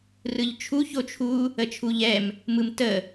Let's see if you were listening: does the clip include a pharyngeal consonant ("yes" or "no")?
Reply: no